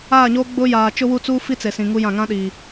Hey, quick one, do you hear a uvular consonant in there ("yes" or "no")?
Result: no